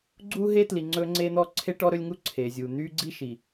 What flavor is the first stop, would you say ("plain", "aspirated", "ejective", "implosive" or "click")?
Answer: click